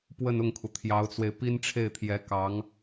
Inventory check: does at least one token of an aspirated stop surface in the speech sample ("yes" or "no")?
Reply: yes